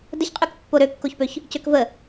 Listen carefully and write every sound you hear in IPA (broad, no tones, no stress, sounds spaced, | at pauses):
d ə ç qʼ y k pː o ɾ ø kː o ç p ø ç | c ø k v ə